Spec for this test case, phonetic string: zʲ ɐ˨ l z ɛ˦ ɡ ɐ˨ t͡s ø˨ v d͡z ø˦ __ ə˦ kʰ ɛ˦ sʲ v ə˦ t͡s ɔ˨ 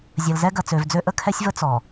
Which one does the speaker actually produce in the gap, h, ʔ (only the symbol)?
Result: ʔ